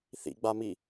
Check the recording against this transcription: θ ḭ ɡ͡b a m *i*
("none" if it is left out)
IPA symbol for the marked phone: i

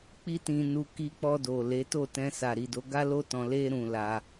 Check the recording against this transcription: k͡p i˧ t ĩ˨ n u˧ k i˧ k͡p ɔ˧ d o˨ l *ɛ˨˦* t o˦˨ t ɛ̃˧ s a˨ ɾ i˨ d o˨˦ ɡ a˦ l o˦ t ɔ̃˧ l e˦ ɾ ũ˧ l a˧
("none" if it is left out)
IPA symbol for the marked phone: e˨˦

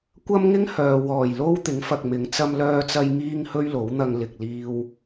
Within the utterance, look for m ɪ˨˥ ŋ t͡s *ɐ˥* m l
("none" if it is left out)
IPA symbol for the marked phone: ɐ˥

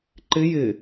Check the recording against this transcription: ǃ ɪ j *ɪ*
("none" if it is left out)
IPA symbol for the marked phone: ɪ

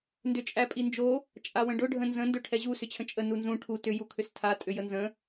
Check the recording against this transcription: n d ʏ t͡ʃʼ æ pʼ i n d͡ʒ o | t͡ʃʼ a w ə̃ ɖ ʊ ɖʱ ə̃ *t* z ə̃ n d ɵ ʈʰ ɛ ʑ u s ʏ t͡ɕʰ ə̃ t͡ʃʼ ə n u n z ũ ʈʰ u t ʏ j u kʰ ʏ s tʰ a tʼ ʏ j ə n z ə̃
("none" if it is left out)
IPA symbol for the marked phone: n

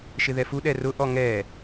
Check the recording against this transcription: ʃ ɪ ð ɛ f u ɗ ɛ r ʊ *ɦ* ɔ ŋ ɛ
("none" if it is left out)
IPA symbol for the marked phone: ʔ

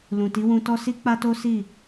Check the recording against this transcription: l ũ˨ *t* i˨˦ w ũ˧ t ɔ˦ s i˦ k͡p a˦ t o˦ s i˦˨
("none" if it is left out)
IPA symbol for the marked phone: t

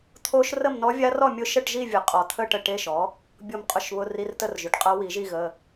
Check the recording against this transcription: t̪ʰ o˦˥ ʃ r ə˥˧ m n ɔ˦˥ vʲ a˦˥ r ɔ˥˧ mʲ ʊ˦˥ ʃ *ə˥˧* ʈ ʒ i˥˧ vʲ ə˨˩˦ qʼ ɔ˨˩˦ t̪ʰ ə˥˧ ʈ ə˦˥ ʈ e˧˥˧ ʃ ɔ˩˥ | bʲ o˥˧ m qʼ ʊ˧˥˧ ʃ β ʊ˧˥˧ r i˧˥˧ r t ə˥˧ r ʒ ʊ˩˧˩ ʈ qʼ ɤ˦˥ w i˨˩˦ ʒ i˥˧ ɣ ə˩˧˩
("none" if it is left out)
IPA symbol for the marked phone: ə˥˧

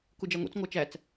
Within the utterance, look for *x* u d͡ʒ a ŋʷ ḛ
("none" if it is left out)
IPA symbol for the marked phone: k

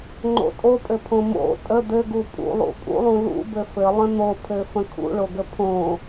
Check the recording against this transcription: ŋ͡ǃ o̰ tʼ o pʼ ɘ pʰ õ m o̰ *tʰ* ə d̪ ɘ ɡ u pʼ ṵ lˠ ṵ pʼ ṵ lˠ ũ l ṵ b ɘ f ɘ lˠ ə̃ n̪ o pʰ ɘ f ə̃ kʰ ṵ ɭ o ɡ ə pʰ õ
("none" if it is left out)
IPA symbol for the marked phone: tʼ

